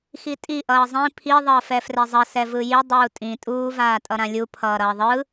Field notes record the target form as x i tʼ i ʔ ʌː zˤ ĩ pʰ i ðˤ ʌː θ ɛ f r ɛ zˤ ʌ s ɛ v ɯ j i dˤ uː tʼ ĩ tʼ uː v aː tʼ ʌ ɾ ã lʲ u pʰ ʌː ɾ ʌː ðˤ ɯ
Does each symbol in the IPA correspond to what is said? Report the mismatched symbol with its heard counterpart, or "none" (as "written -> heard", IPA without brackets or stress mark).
θ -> f